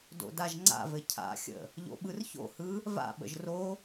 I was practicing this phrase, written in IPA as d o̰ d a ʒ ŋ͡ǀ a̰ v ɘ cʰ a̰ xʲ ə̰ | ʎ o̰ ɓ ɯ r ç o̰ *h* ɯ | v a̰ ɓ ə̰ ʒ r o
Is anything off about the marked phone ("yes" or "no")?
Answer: no